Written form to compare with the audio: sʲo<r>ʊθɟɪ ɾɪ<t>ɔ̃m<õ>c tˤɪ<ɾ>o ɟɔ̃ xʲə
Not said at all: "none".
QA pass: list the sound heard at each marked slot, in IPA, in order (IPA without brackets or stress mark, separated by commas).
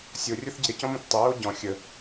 rʲ, c, õ, ɹ